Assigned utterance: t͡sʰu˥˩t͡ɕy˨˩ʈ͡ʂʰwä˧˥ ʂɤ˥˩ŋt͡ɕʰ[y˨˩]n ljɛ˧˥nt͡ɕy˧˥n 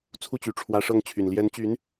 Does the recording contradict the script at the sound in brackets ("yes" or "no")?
no